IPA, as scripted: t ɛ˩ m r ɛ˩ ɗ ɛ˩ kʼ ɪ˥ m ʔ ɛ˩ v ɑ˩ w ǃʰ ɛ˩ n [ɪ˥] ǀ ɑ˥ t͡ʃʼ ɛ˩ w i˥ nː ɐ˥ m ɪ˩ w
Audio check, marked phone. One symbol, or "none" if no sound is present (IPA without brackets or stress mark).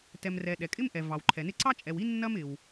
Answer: ɪ˥